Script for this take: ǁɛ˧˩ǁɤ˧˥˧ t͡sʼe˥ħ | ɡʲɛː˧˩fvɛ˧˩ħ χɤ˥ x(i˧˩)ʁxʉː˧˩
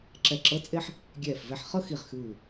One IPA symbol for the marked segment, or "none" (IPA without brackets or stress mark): i˧˩